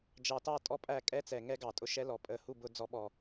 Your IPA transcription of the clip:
d͡ʒ ɑ˨ t ɑ˦˨ tʼ ɔ˦ pʼ æ˦˨ kʼ ɛ˦ t͡s ɛ˨ ŋ ɛ˦ ɡ ɑ˨ tʼ ʊ˦ ʃ ɛ˦ l ɔ˨ pʼ ə˦˨ h u˦˨ b ʊ˨˦ d͡z ɔ˦ ɓ ɔ˦˨

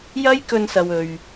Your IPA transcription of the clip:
j ɐ˥ j k ɵ˧ n s ɐ˨ w ɵ˨ ɥ

